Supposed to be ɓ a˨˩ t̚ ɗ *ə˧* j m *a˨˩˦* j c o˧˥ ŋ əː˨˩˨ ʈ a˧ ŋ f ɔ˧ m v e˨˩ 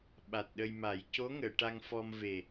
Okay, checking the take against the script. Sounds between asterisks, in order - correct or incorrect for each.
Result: correct, correct

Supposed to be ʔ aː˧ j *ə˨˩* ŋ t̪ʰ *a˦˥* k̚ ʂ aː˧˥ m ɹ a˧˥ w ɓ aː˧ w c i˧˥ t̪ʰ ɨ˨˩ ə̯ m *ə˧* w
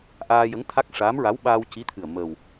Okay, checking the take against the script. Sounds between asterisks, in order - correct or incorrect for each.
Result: incorrect: ə˧˥, correct, incorrect: ə˨˩

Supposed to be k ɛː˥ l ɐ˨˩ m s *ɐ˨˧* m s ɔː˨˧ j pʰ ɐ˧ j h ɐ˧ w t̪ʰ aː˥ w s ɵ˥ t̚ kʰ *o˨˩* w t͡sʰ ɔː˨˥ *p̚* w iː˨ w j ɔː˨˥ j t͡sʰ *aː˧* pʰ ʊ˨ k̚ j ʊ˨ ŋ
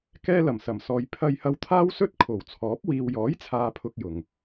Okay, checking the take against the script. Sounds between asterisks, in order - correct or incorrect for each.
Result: incorrect: ɐ˨˩, correct, correct, incorrect: aː˨

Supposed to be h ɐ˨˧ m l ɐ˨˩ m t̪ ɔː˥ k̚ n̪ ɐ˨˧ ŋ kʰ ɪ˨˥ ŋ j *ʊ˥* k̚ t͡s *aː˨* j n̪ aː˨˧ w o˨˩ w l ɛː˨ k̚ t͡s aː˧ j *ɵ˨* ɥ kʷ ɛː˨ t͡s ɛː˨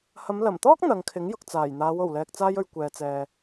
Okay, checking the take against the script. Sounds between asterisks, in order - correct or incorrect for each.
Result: incorrect: ʊ˨, incorrect: aː˨˩, correct

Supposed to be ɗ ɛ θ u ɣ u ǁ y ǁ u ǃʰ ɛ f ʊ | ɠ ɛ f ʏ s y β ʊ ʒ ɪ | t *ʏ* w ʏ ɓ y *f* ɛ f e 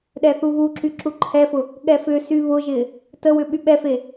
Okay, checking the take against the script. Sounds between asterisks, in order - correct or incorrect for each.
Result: incorrect: ə, incorrect: ɓ

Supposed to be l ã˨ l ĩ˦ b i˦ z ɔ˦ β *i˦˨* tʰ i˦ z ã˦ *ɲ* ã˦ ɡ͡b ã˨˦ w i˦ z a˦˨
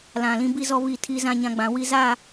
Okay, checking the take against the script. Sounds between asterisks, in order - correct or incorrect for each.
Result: correct, correct

